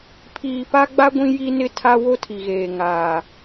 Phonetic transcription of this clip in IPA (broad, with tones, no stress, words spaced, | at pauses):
pʰiː˨pa˦ɡ͡ba˦ ɡʷĩ˦ji˦nɪ˦ tʰa˦wo˦tʰi˨ɣeː˨ ŋaː˨